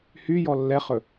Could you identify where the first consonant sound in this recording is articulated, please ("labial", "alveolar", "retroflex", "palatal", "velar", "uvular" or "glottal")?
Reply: glottal